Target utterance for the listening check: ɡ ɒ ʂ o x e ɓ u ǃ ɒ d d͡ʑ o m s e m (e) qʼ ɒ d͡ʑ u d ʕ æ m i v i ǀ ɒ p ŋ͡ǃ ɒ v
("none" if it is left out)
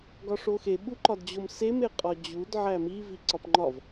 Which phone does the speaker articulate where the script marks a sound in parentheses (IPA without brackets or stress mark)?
e